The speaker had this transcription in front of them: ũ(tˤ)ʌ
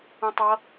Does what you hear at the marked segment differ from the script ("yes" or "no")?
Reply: no